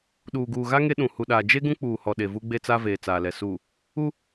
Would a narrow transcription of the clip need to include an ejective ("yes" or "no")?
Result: no